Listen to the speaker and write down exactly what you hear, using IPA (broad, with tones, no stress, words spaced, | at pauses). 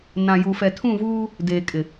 nã˨ju˨ fɛ˨tʰũ˦˨vuː˦ | deː˨kʼɪ˨